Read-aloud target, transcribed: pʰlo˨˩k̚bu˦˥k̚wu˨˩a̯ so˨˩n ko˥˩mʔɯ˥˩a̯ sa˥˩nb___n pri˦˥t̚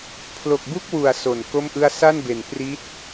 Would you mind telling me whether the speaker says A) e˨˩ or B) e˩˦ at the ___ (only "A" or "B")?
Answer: A